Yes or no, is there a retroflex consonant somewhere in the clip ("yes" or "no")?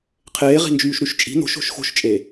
no